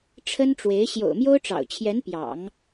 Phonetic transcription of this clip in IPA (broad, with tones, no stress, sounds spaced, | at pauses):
ʈ͡ʂʰ ə˥ n ʈ͡ʂ w e˧˥ ɪ̯ ɕ j o̰˨˩ ʊ̯ m j o˥ ʊ̯ ʈ͡ʂ ɑ̰˨˩ ʊ̯ t͡ɕʰ j ɛ˧˥ n p j ɑ̰˨˩˦ ŋ